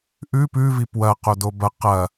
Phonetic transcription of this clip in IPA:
ʔ ʉ p ʉ v i p w ɐ q o d o b ɐ q ɐ

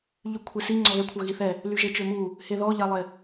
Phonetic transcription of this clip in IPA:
ʎ y kʷʰ e s i ŋ͡ǀ ɔ ɣ ɛ kʷʰ œ ɣ i θ ɛ | l y ʒ e t͡ʃ ø m u | h e ð ɔ ʎ a lˠ e

